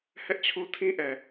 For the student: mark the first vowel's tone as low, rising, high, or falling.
high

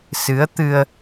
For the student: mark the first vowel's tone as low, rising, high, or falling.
rising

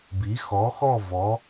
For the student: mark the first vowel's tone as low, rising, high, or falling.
rising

